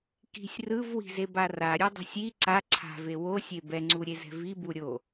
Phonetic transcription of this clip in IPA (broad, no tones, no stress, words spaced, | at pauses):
ki̤sʲ rɯvwi̤zeba raɾʲudˤa̤sʲ i ǀa ǀʰa̤ve wosʲe bɛŋ͡ǀuɾʲezɛ̤ vibu ɾʲo